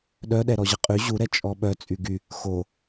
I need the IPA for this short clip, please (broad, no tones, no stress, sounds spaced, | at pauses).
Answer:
ɗ œ ɗ ɛ ɾ ɔ ʑ ə qʼ y ʑ u ɾ ɛ t͡ʃʼ ɔ ɓ œ t͡sʼ y ɡ y | x o